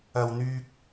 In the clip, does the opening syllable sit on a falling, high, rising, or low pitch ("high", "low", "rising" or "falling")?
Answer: low